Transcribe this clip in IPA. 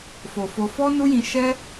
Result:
f o˨ f o˧ f ɔ˦ n u˦ j ĩ˧ ʃ ɛ˦

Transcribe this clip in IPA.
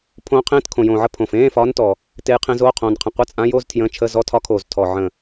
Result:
pʰ õː˧˥ qʰ ẽː˧˥˧ t kʰ õ˨˩ j õː˨˩ ʕ ə˧˥˧ pʰ õ˨˩ f ẽː˧˥˧ f ɒː˧˥ n t ɔ˨˩ | t e˧˥ j qʰ ẽ˧˥ z oː˧˥˧ qʰ õː˨˩ n qʰ ə̃˨˩ qʷ ə˧˥˧ t͡sʼ ã˧˥ j o˧˥˧ z tʰ j ə̃ː˧˥˧ t͡ʃʰ ə˧˥˧ z ɔ˧˥˧ tʰ ɒ˧˥ kʰ oː˨˩ z tʰ ɔ˨˩ ʕ ə̃˨˩

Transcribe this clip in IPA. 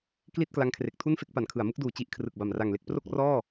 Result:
k l i˥˩ t̚ k l a˦˥ ŋ kʰ r e˨˩ k̚ tʰ u˥˩ n f e˥˩ k̚ p a˩˦ n kʰ ɯ˩˦ a̯ m ɯ˦˥ k̚ d uː˨˩ t͡ɕ i˦˥ ʔ kʰ r ɯ˨˩ k̚ b a˨˩ m r a˨˩ ŋ l e˥˩ k̚ p r o˥˩ k̚ r ɔː˥˩

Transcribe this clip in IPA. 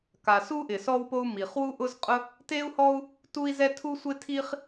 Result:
k a˩ s u˥ ʔ ɪ˩ s ɔ˥ w p o˥ u̯ m i˩ χ w u˥ ʔ ʊ˥ z qʼ ʊ˥ | t e˥ u̯ h ɔ˥ u̯ | t u˥ i̯ z ɛ˥ tʰ u˥ sʷ ɪ˥ tʰ i˥ χ

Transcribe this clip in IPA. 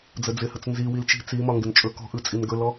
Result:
d͡z ə d͡z ɪ h ə t͡s n z i w i l t͡ʃ i̤ t͡s i m ɒ ŋ ɡ ɪ n t͡ʃʼ ɵ k ɔ̤ ʔ ɯ t͡sʼ i n ɡ ɵ l ɔ

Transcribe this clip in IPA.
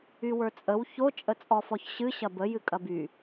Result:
y w ə˞ t͡sʼ ə w ç o t͡ʃʼ ə t͡sʼ ɔ f ɔ ç ɕ ɨ ɕ ɐ b ə j ɨ kʼ ɐ b y

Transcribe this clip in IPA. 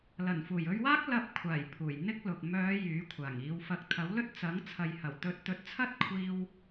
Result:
l ɐ˨˩ n f uː˨˩ j ɵ˧ ɥ w aː˥ k̚ l ɐ˧ p̚ kʷʰ aː˨˩ j pʰ uː˨˩ j n̪ ɪ˥ k̚ l ʊ˨ k̚ m œː˨˧ j yː˨˥ kʷʰ aː˨˩ ŋ iː˨˧ w f ɐ˨˥ k̚ t̪ʰ ɐ˨˥ w l ɵ˥ t̚ t͡s ɐ˨˥ ŋ t͡sʰ ɐ˨ j h ɐ˨˩ w t̪ ɵ˨˥ t̚ t̪ ɵ˨˥ t̚ t͡sʰ ɐ˥ t̚ kʷʰ iː˧ w

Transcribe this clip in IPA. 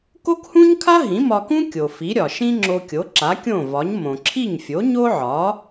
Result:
k o˥ k h ũ˥ ɲ kʰ a˥ ɦ ĩ˩˥ m ɒ˧ k ũ˥ kʲ o˩ f i˩˥ ɾʲ ɒ˩ ʃ ĩ˥ ŋ͡ǁ o˧ kʲ o˩˥ ǁ a˩˥ kʲ õ˥˩ v ɒ˩˥ ɲ m õ˩ ǁʰ i˥˩ ɲ fʲ o˩˥ ɲ o˥ ʕ ɒ˩˥

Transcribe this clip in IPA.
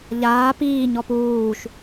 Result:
ʎ aː p iː ɲ ɔ p uː ʃ

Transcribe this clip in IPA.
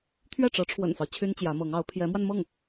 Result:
t̪ʰ ɥ ɛ˥˩ ʈ͡ʂ ɤ˧˥ ʈ͡ʂʰ w ə̰˨˩ n f ɑ˦ ʊ̯ t͡ɕʰ y˥ n t͡ɕ j ä˧˥ m ɤ˧˥ ŋ ɑ˧˥ ʊ̯ pʰ j ɛ˧˥ m w a˧ n m ɤ˥˩ ŋ

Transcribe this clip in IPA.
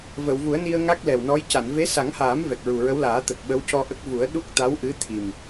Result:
v ə˨˩˨ w v u˨˩˦ ə̯ n i˧ ə̯ ŋ a˦˥ k̚ l ɛ˨˩ w n ɔ˧˥ j c a˨˩˨ n v e˧˥ s a˨˩˦ ŋ h aː˨˩˦ m v ɛ˨˩ k̚ ɹ u˨˩ ɹ ə˧˥ w l aː˨˩˦ t̪ ə˨˩ k̚ ɓ ə˧˥ w c ɔ˧ ʔ ə˦˥ k̚ v u˨˩˦ ə̯ ɗ u˦˥ k̚ t̪ a˧˥ w ʔ ɨ˧˥ t̪ʰ i˨˩ m

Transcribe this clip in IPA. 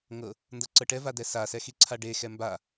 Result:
ŋ ɤ | n d ɤ ǀ ɤ ʈ ɛ v a d ɛ s a s ɛ x i ǀʰ a ɖ e x ɛ m b a

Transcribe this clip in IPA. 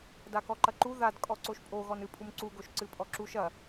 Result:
d a k ɔ ǃ ɐ ǃ u ð a d kʼ ɔ ǀ o ʃ pʼ o ɣ ɔ n ɨ pʼ u m ǀ u ɡ o ʃ ǀ ɨ pʼ ɔ ǁ u ʃ ɐ

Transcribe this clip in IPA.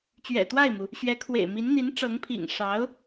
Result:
t͡ɕ ɥ ɛ̰˨˩ t̪ w a˥˩ ɪ̯ m u˩ | ɕ ɥ ɛ˧˥ kʰ w ḛ˨˩ ɪ̯ m i˧˥ n n̪ i˧˥ n ʈ͡ʂ ɤ˧˥ ŋ pʰ ḭ˨˩ ŋ ʂ ɑ˧˥ ʊ̯

